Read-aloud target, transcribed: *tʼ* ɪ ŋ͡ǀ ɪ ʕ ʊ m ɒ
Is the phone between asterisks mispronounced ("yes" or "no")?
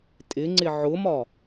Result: no